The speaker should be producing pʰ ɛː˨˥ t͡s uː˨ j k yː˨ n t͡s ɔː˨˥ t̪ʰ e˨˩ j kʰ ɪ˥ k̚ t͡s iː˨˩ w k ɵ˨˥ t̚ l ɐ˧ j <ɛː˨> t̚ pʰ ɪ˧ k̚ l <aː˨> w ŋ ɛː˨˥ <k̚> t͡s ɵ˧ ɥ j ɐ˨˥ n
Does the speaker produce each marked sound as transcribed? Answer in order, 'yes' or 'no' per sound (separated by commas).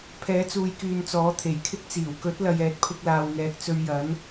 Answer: no, yes, yes